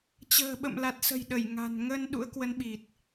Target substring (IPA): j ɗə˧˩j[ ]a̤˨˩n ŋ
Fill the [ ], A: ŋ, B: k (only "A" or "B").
A